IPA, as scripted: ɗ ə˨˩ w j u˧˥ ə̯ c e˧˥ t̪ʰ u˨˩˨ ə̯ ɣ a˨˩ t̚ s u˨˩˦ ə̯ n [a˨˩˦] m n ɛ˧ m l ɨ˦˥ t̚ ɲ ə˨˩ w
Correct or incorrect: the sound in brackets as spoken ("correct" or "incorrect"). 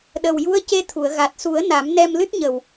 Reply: correct